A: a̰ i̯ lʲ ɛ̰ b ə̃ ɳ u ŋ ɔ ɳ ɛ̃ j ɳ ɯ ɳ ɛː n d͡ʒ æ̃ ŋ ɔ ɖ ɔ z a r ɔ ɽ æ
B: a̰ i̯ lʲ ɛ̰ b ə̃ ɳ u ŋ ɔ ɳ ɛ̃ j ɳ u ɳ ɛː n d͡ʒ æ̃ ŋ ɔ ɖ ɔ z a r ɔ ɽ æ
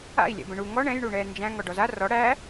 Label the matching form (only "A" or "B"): B